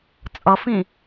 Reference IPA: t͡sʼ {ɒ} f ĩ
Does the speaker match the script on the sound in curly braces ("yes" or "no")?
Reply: no